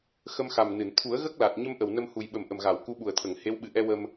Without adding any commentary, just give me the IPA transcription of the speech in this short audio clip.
x ə˧ m x a˨˩ m n ɨ˨˩˨ n t̪ʰ u˨˩˦ ə̯ ɣ ə˦˥ k̚ l a˨˩ t̚ ɲ ə˧ m ʔ ə˨˩ w n ə˧ m h u˨˩ j ɓ ə˨˩ m ʔ ə˨˩ m ɣ a˨˩˨ w k u˧˥ ɓ u˨˩ ə̯ t̪ʰ ə˨˩˨ ŋ h e˧˥ w ɓ ɨ˨˩ ʔ ɛ˧ w ə˧ m

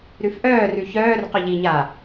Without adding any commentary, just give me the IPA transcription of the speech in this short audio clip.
ɾ ʉ f ʔ œː r ʉ ç œː r q œ ʎ i ɲ aː

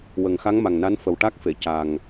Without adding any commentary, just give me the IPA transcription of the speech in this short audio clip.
w ə˨˩ ŋ x a˧˥ ŋ m a˨˩ ŋ n a˧˥ n f ə˨˩ w ʈ a˦˥ k̚ f e˨˩˨ c a˨˩ ŋ

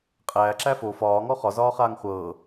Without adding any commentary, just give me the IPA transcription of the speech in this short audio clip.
qʼ æː ǁ æ f o f ɒː ŋ ɔ χ ɒ z ɒː χ aː ŋ χʷ ɤː

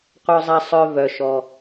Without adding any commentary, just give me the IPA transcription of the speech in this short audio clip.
qʷ œ˧ zˤ a˧ sˤ œ˧ v œ˩ ʃ ɔ˩

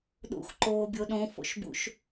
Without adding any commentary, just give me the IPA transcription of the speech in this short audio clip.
ɗ ṵ x ǃ oː bʲ o ɗ õ f o̰ ʃ b ṵ ʃ

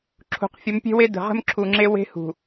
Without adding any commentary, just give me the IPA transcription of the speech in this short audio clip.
ǁʰ ṳ˨ q fʲ ə˨˦ m pʲ e̤˦ w e˦ d ə̤˨ ʁ ə̤˦ m ǁʰ u˨ ŋ͡ǁ e˦ w e̤˦ h ṳ˨

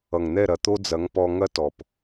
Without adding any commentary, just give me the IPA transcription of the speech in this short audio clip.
ʌ˨ ŋ n̪ ɛ˦˨ ɾ ɐ˧ t̪ o˦ d͡z ɐ˨˦ ŋ p ɔ˧ ŋ ɐ˦ t ɔ˨ p

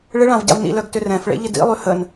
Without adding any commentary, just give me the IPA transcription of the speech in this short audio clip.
ɭ ɪ ɭ ã v ɟ a̰ v n ḭ l œ ɡ t ʏ r ɛ̃ f ɭ ḛ ʎ ɪ d ḭ lˠ y h ə n

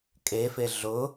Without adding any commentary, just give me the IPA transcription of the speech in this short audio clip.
kʼ e f e ɮ ʊ

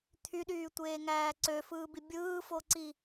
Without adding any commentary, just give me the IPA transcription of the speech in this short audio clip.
t̪ʰ y ɗ yː tʷ eː ŋ æː ǀ ø f ɯː b i bʲ ɯː f o ǀ i

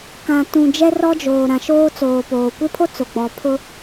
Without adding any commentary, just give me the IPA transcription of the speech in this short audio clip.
k ã˨ t ũ˨ d͡ʒ ɛ˦ r ɔ˦ d͡ʒ oː˨ ɾ ã˨ ʃ oː˦ t͡s oː˨ p oː˨ kʷ ɪ˦ pʰ o˦ t͡s o˨ ɡ͡b ɔ˨ pʰ ʊ˦

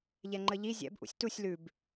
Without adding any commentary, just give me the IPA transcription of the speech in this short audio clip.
ʎ ɛ ŋ͡ǃ ə ʎ i zʲ ɛ̰ b ʔ ṵ sʲ t u sʲ l ʉ b

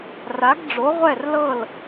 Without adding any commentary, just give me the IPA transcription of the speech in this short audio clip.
r a˩˥ ɡ ɖ͡ʐ o˩˥ ʁʷ ɛ˥˩ r l ɤ˥˩ l

